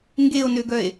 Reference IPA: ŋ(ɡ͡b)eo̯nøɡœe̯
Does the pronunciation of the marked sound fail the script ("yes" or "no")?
yes